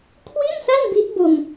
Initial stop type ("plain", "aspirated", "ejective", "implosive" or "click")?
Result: aspirated